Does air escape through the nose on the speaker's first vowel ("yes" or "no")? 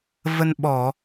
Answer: no